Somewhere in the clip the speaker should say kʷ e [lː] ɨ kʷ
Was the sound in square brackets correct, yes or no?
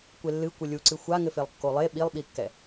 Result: yes